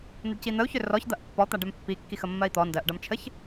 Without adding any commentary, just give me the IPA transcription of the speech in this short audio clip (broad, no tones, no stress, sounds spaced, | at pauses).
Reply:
n̪ ə ɖ c i n̪ ə u̯ ç ʏ r ɔ ç d̪ ɐ ʔ pː ɔ t̪ a ɖ ɛ m pː i kː i x ə mː ɜ i̯ t̪ ɔ n d ɜ ʔ ɖ ɐ m t͡ʃʰ ə ç